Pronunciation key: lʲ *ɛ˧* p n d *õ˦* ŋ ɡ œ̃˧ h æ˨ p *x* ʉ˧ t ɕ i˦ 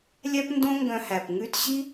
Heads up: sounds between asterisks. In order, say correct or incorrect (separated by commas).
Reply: incorrect, correct, incorrect